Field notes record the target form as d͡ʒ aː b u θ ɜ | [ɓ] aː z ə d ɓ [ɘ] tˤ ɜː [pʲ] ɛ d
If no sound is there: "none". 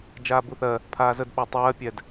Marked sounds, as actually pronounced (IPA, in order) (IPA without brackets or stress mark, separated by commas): pʰ, ɛ, pʲ